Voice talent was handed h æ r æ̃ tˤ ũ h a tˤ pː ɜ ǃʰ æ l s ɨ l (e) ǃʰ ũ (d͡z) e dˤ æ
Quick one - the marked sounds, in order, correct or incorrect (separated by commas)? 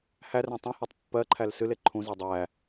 correct, incorrect